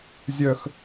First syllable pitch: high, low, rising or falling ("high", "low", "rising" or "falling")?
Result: low